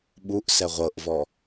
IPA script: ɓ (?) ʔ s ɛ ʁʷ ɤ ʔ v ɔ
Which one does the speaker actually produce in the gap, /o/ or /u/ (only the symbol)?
u